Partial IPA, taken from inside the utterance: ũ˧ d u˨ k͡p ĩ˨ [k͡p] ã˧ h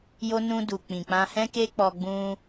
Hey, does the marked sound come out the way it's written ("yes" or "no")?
yes